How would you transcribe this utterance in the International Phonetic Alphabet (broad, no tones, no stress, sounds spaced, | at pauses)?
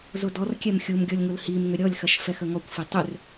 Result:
z ʊ d ɔ r kʲ ɛ m xʲ u m ɡʲ ɔ lʲ ŋ ʊ l h i m ŋ ʏ ɾʲ ɔ lʲ x ɐ ʃ f ɛ x ə ŋ ɔ kʷ f i tˤ ʏ r